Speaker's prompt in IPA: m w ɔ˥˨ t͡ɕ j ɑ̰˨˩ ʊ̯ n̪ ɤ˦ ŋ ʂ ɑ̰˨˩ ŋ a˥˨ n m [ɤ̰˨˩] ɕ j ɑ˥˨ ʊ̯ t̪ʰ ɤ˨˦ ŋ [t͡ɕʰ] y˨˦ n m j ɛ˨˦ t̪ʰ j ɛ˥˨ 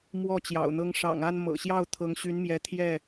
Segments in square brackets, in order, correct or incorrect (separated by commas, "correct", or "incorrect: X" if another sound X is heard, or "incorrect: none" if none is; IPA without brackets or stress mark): correct, incorrect: ɕ